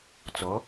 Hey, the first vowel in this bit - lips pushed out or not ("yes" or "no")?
yes